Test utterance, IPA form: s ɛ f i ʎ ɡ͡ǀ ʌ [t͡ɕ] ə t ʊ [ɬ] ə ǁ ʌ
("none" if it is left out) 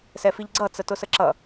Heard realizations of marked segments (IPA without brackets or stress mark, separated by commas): t͡s, s